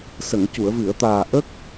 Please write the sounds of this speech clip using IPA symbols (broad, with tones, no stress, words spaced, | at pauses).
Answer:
sə˨˩˨ŋcu˨˩˨ə̯vɨ˨˩˨ə̯t̪aː˨˩ ʔə˦˥k̚